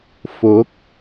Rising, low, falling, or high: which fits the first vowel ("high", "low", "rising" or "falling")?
rising